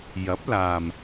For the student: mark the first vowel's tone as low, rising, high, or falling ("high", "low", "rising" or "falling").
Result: rising